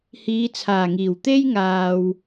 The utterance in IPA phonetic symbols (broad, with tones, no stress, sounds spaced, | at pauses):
h iː˨˧ t͡sʰ aː˨˩ ŋ iː˨˩ w t̪ e˥ j ŋ aː˨ w